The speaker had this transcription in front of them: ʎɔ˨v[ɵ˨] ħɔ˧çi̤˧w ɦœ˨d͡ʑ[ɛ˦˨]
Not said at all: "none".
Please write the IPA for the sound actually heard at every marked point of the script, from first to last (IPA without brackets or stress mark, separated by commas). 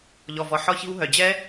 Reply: ɔ˨, ɛ˦